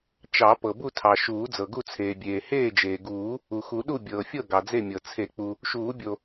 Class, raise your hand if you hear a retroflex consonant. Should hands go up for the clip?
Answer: no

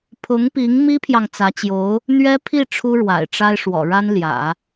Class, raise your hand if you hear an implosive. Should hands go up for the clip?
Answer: no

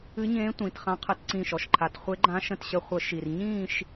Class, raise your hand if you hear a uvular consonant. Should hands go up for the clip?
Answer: yes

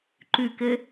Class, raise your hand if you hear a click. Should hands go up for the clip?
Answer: yes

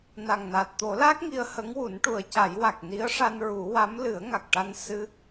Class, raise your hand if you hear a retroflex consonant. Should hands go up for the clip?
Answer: yes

